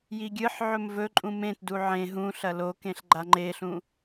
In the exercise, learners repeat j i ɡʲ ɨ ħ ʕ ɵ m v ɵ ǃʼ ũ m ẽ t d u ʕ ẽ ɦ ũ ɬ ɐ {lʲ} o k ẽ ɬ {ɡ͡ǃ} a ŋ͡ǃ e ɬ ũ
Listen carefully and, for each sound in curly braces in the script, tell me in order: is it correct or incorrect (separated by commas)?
incorrect, correct